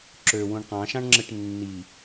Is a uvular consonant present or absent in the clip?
present